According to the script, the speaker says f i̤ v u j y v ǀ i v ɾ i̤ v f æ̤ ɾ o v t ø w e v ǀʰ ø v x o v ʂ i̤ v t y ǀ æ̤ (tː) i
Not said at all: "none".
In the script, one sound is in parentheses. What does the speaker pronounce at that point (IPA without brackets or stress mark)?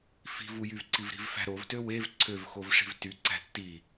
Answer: tː